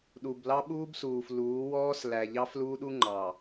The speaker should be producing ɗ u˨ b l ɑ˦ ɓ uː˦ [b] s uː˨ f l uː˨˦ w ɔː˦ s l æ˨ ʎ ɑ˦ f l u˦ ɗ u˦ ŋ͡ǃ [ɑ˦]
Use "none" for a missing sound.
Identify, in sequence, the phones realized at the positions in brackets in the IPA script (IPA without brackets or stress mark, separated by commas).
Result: b, ɑ˨